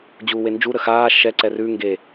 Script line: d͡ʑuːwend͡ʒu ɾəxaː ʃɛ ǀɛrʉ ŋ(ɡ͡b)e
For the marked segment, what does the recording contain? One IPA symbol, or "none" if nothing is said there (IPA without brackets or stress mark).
ɡ